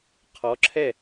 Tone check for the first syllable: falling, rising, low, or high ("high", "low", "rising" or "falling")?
rising